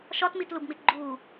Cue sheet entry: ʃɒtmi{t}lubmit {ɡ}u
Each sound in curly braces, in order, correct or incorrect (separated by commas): correct, incorrect